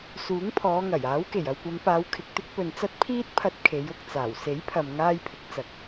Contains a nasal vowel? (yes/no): no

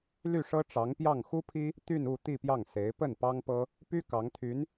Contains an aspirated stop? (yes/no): yes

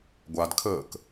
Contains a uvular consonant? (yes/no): no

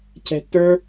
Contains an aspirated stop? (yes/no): yes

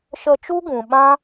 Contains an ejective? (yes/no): no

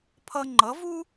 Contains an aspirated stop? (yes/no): yes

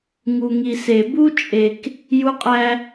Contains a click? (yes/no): no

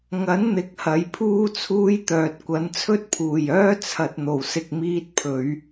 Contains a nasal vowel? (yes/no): no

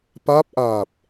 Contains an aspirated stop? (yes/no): no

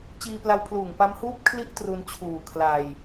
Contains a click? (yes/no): no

